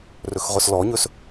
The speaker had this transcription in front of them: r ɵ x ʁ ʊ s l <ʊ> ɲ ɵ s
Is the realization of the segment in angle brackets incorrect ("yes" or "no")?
yes